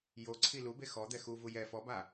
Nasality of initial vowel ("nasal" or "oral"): oral